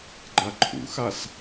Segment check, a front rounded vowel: absent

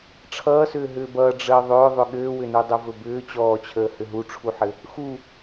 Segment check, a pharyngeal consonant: present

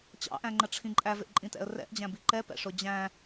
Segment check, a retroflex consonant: present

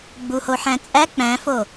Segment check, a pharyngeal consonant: present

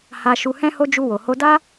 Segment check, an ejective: absent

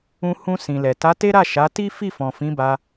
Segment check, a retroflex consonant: absent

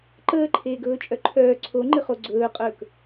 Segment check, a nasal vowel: absent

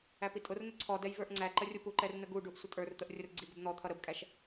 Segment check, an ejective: present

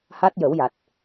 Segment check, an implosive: absent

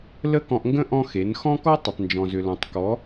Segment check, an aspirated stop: absent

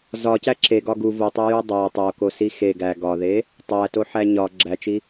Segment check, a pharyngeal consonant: present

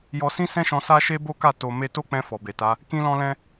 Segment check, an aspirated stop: absent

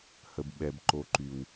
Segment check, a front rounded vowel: present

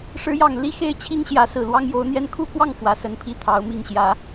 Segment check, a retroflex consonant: present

